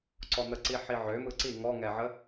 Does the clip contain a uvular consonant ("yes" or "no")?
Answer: no